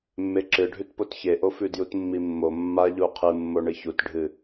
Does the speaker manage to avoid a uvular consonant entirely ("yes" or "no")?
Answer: no